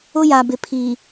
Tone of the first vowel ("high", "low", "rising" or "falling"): high